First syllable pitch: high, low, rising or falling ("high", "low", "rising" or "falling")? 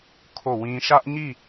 falling